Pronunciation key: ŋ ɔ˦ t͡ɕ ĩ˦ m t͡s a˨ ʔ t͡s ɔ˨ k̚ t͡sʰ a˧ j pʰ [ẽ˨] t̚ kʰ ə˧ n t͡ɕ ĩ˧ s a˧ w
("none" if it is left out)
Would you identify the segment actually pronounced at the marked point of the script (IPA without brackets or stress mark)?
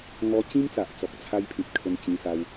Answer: ĩ˨